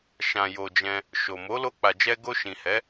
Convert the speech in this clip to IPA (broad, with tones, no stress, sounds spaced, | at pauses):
ʃ ã˨ j o˨ d͡ʒ ɛ̃˧ | ʃ o˨ m o˨˦ l o˧ k͡p a˨ d͡ʒ ɛ˧ ɡ o˧ ʃ ĩ˨ h ɛ˨˦